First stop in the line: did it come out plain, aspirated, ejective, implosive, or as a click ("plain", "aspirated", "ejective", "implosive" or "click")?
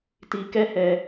plain